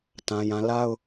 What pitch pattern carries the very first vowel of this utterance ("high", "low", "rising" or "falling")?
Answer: high